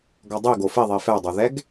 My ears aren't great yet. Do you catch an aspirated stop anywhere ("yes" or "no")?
no